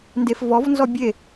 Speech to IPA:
n d e f v ɔ v n z ɔ bʲ e

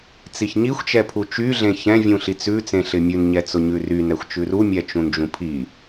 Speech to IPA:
t͡s i ç ɲ i xʷ t͡ʃ ɛ pʰ u t͡ʃ y ɮ ẽ ç ɛ̃ vʲ ũ ɬ i t͡s ʉ t͡s ẽ ɬ ɪ mʲ ʉ n ɲ ɛ t͡s ʊ ɲ ʉ r y n ɛ xʷ t͡ʃ ʉ r u mʲ ɛ t͡ʃ ũ n d͡ʒ ũ pʰ i

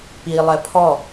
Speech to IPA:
p i lˠ ɛ pʰ ɔ

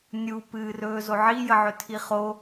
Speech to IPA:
nʲ u p ɨː r ɵː z o ʕ i j ə ʕ ɵ tʰ i χ o

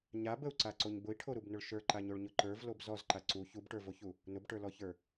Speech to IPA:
ɲ a b ə u̯ ǀ a ǀ o ɲ b ʊ i̯ ʈʰ o ɾ u b n ʊ ɭ ʃ ə˞ ǃ a ɲ o ɭ ɲ ʊ ǃ ə˞ v l o b z ɔ z ǃ a ǀ u ç u b ʈ ə˞ v o ç u | n ʊ b ʈ ə˞ l ɔ ç ə˞

